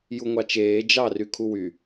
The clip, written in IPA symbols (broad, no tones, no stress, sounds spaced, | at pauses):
j u ŋʷ ɑ t͡ʃ eː d͡ʒ ɑ r y kʰ u w y